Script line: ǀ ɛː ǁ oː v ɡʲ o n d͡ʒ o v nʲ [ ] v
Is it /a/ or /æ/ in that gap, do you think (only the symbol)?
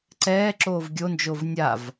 a